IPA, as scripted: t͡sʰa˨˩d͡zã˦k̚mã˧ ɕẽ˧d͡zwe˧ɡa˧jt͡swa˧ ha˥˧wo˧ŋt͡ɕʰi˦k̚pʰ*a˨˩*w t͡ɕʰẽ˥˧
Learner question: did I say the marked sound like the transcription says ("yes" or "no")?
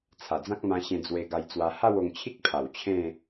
yes